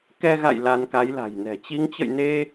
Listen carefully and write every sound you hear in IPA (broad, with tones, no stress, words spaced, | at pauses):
kɛ˧ɣa̰˧˨j la˧nka˨˦jla̤˨˩jnɛ̤˨˩ t͡ɕi˨˦ŋt͡ɕə̰˧˨jne˧